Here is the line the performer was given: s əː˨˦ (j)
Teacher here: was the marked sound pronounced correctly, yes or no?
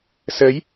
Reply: yes